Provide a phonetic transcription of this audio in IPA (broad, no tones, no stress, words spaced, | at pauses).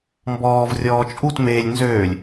mbɔːv rʲɔːt͡ʃʼut meːlʲ nzøːlʲ